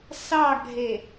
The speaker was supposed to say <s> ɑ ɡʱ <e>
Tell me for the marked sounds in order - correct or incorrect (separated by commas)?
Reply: correct, correct